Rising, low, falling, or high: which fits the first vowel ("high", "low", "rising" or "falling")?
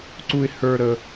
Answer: high